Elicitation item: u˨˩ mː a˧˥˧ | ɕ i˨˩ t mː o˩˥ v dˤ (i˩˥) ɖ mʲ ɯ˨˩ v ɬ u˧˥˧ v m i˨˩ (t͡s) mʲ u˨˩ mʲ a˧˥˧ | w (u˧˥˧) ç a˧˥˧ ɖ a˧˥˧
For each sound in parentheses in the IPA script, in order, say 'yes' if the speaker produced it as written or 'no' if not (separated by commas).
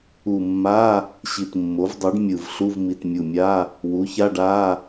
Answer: yes, no, no